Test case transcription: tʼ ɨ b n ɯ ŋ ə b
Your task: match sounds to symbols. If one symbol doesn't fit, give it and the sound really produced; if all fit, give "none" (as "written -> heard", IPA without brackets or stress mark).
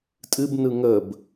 none